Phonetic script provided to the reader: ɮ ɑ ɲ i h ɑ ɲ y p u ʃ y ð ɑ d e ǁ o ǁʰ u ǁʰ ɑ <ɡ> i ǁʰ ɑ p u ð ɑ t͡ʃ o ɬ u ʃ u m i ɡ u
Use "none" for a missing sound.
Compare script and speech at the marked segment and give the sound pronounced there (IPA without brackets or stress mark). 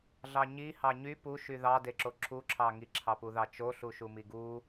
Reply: ŋ